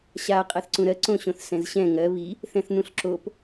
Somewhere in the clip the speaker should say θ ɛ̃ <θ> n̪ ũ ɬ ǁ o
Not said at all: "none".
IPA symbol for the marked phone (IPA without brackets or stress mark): θ